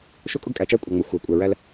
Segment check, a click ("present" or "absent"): absent